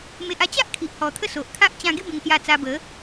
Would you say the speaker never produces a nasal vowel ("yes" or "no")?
no